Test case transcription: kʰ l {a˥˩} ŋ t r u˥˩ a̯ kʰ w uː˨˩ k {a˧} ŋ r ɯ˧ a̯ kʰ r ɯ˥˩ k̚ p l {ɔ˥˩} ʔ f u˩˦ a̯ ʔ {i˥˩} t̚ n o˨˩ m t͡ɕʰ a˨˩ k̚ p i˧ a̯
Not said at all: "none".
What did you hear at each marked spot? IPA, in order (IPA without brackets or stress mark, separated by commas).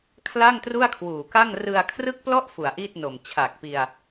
a˥˩, a˥˩, ɔ˥˩, i˥˩